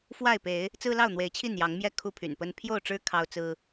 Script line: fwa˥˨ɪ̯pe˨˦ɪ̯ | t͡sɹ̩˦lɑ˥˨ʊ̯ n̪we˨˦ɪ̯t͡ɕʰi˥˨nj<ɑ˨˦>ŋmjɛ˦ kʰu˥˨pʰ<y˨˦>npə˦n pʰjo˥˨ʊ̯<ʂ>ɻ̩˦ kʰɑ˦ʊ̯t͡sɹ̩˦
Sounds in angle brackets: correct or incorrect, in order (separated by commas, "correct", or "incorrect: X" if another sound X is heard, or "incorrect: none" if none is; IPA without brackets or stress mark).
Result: correct, incorrect: y̰˨˩, incorrect: ʈ͡ʂ